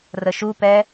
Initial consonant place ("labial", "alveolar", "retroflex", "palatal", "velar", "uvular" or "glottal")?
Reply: alveolar